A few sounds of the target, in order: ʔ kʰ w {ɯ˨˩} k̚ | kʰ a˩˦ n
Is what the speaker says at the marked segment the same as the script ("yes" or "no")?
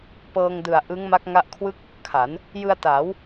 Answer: no